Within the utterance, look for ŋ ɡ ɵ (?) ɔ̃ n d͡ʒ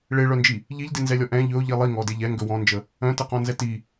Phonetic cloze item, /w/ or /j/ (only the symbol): w